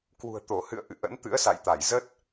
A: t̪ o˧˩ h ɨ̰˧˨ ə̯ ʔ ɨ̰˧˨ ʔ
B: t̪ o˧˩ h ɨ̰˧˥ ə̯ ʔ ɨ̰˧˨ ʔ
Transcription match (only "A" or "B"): A